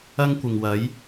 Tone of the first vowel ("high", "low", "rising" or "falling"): high